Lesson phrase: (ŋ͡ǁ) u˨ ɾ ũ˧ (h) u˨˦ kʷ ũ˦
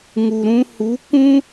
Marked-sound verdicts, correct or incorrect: incorrect: ŋ, correct

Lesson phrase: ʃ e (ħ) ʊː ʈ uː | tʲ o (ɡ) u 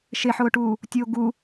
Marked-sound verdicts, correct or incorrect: correct, correct

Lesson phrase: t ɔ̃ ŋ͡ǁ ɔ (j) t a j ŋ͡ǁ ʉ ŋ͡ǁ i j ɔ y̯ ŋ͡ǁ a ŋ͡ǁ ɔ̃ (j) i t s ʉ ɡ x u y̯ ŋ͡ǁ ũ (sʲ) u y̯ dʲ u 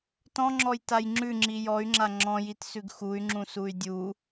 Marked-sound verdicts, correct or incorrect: correct, correct, incorrect: s

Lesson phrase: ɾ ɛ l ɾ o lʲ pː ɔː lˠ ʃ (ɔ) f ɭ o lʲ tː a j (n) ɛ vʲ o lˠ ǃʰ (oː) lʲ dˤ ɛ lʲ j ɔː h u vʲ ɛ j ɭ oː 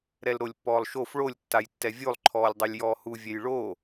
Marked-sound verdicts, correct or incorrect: incorrect: o, incorrect: tː, incorrect: ɔː

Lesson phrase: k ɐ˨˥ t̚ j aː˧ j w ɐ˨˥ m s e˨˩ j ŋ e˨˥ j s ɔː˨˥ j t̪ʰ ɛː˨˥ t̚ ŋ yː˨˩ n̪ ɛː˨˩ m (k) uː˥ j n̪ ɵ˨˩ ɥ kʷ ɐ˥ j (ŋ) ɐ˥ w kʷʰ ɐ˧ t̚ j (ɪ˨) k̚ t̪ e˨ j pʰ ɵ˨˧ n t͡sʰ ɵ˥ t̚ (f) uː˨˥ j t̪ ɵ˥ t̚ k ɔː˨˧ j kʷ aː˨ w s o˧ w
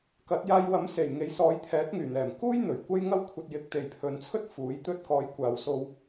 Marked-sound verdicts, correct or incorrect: correct, correct, incorrect: ɪ˨˥, correct

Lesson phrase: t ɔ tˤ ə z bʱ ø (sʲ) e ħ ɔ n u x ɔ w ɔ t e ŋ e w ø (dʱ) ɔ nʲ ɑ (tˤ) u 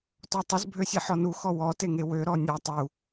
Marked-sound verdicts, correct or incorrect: correct, incorrect: ɾ, correct

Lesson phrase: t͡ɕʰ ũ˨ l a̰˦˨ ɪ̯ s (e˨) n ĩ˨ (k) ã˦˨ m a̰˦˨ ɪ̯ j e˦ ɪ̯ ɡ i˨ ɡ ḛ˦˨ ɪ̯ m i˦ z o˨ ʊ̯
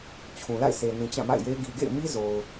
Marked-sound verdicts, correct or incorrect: correct, incorrect: t͡ɕ

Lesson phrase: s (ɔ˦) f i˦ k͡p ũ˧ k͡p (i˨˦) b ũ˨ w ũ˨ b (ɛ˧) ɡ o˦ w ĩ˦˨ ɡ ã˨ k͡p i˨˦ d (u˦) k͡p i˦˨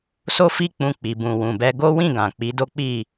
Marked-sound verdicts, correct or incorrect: incorrect: o˦, incorrect: i˨, correct, incorrect: o˦

